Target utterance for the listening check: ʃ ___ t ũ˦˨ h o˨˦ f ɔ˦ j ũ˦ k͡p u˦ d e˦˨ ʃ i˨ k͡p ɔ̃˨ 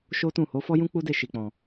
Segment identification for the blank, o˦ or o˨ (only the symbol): o˦